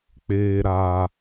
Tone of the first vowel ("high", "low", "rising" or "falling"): low